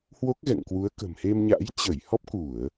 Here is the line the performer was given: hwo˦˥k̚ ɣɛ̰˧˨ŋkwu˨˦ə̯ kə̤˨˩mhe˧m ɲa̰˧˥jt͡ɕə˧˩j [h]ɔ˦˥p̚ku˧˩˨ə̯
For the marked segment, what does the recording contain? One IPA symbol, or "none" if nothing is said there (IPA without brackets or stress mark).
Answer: h